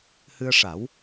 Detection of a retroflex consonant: present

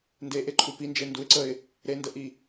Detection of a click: present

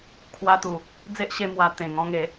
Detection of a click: absent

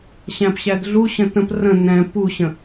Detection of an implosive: absent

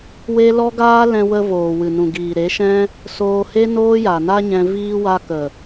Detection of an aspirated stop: absent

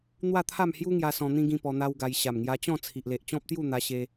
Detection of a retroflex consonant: absent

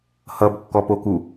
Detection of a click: absent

